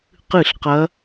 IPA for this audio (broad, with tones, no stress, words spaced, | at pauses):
qɨ˧˩˧ɬqɐ˩˧